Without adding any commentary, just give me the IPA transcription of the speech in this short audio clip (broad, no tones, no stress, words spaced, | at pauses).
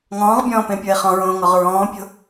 ŋɔ̃ːʁbʲɔ̃ːpẽpʲoe̯ χɔ̃ɹõːŋɔʁ ɹɔ̃ːpʲo̤